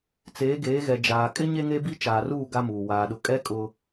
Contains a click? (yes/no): no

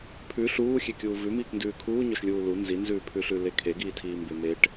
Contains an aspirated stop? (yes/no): yes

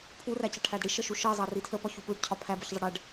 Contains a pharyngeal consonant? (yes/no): no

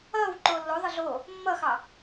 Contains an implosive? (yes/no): no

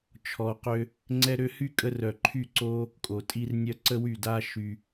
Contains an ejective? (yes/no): yes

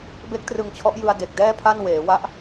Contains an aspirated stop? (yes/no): yes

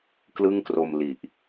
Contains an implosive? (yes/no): no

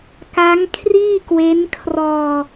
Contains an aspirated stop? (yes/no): yes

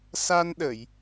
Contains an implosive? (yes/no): yes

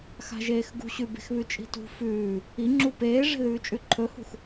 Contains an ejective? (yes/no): yes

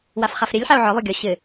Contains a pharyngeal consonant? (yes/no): yes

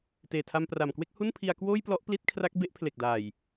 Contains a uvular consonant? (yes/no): no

